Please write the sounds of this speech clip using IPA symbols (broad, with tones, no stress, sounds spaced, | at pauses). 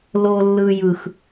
l o˨ lː ɯ˨ j ɯ˨ x